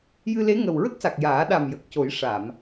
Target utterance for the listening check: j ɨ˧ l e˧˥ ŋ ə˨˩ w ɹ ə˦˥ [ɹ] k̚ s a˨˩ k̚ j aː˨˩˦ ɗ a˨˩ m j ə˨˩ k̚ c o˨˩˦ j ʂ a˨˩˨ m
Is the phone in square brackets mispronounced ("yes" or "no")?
yes